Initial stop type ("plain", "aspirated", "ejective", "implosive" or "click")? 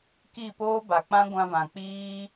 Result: plain